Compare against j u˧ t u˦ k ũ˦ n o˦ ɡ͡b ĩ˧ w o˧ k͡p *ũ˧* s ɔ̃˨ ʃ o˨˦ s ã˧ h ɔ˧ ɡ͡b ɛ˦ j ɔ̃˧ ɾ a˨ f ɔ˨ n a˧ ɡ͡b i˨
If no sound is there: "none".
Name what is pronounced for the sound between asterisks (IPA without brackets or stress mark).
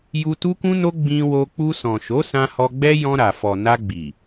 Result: u˧